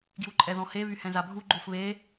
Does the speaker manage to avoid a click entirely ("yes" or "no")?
no